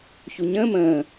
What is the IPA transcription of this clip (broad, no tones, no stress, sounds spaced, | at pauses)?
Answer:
ç u ɲ ə̃ː m ə̃ː